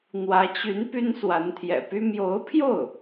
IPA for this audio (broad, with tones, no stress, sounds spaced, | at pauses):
n̪ w ä˧˥ t͡ɕ y˧˥ n p y˥ n s w a˧˥ n t̪ʰ j ɛ̰˨˩ p y˥ m j o˧˥ ʊ̯ pʰ j o˥˩ ʊ̯